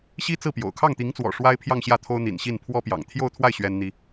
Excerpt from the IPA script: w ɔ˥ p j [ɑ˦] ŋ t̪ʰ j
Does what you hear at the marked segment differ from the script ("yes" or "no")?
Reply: yes